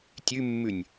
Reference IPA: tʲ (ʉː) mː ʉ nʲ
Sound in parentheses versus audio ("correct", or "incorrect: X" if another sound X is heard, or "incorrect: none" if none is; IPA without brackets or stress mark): incorrect: ʉ